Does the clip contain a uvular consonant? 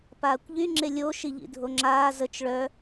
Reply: no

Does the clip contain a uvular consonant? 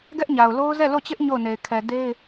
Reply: no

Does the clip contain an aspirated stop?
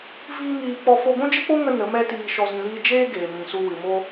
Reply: no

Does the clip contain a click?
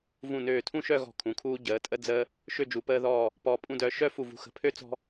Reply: no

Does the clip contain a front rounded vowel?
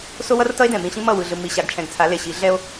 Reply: no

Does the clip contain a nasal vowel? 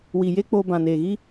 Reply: yes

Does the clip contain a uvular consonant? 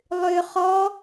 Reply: yes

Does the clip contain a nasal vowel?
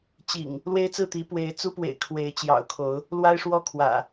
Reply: no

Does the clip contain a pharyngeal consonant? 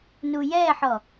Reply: yes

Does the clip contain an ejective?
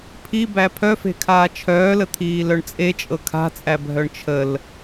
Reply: yes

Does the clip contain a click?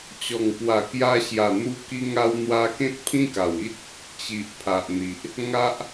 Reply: no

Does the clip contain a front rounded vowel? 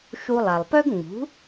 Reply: yes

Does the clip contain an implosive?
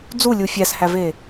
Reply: no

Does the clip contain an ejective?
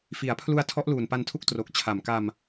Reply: no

